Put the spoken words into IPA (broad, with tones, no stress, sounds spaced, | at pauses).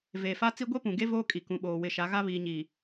v eː˨ f a˦ t͡s i˦ ɡʷ e˦ p ũ˨ ɡ e˦ v oː˦ kʼ i˨ k ũ˨ ɓ oː˨ w ɪ˨ ʃ a˨˦ ɣ a˦ β iː˨ ɲ i˨